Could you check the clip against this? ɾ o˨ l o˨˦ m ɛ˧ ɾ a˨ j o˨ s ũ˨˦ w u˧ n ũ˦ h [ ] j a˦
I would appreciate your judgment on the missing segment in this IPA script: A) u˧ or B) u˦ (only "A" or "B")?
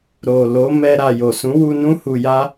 A